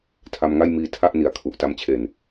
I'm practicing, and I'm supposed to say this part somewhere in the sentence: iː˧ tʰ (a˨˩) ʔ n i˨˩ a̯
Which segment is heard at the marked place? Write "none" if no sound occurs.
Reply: a˥˩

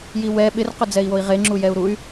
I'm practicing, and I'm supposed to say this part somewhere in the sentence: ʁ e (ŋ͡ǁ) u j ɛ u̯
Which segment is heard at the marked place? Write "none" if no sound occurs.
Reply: ŋ͡ǁ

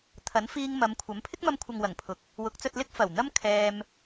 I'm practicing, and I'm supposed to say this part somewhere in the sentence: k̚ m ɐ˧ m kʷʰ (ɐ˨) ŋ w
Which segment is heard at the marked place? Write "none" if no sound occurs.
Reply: ɐ˨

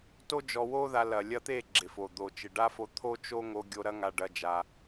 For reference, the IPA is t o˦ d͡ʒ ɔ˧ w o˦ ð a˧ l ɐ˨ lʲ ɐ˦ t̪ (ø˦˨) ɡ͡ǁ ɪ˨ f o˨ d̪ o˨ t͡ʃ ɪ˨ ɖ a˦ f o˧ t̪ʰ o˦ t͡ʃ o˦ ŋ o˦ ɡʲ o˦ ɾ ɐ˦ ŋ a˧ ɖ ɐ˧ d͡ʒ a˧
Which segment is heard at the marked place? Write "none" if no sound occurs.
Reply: e˦˨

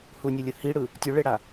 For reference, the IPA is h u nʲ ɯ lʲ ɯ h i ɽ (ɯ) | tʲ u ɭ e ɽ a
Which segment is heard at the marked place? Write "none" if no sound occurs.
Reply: ɯ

